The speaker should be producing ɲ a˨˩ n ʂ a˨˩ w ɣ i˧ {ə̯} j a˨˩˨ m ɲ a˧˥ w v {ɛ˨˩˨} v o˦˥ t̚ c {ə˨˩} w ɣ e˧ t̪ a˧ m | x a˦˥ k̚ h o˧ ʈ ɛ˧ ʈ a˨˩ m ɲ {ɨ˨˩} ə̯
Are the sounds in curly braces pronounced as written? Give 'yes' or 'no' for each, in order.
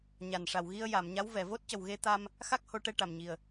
yes, yes, yes, no

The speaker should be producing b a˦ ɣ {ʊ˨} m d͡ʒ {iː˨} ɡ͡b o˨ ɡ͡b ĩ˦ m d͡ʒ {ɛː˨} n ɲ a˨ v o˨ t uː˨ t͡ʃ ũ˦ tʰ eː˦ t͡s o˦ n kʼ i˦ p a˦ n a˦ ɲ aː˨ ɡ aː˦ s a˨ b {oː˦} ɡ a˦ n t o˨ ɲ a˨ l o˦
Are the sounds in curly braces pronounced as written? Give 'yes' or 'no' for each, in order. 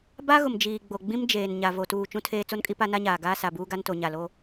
yes, yes, no, no

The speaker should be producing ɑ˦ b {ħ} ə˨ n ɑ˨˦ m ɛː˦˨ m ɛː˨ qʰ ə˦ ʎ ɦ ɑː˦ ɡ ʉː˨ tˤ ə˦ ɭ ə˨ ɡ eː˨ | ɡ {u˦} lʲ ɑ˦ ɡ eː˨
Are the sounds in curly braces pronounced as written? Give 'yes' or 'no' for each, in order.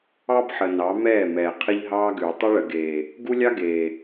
yes, yes

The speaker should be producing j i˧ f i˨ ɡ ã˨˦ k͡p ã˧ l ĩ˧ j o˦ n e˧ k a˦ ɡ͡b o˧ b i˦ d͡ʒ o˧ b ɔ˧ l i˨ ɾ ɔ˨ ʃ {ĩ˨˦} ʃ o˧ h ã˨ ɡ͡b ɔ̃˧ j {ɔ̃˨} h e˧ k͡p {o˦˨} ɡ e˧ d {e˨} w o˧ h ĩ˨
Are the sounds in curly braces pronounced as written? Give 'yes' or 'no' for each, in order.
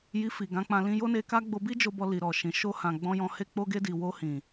no, no, no, no

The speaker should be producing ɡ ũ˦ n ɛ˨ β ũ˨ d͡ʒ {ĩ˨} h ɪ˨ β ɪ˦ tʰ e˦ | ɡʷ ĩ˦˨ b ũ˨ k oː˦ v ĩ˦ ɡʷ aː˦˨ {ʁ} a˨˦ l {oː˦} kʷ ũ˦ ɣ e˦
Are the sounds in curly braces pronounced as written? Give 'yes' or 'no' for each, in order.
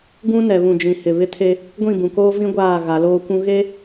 yes, no, yes

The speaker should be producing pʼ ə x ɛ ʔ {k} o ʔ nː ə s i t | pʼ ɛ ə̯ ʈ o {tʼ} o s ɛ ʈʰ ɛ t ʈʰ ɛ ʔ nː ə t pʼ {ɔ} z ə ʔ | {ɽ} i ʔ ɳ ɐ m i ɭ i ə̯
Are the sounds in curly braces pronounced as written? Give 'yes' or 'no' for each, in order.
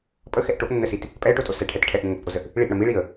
no, yes, no, no

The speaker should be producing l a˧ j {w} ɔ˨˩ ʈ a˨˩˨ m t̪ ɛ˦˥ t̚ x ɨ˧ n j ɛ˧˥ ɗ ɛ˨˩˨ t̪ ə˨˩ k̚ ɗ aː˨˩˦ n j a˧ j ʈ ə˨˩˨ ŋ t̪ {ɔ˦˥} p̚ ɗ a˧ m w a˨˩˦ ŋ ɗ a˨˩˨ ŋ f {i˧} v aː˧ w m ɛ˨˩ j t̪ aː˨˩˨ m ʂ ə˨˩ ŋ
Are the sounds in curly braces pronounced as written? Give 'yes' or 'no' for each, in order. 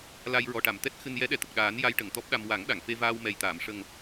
no, yes, no

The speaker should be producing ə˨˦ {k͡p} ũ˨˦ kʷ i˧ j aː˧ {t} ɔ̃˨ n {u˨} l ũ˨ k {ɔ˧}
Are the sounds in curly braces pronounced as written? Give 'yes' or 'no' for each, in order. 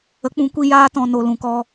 yes, yes, no, yes

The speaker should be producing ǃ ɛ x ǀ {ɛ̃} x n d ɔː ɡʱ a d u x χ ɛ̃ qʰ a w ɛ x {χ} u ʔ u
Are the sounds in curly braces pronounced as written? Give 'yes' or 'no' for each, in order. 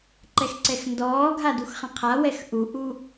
no, no

